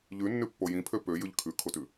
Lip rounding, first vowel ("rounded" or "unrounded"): rounded